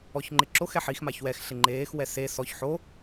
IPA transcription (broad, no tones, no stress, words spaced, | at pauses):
ɔçŋ͡ǃɪǁox ɛħix maçwɛx ɬɪŋ͡ǃeːx wɛse sɔç ħo